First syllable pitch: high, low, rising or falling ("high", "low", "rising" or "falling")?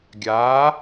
rising